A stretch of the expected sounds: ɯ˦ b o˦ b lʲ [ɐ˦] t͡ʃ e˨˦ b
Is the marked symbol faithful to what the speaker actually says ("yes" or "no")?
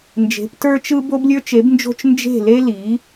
no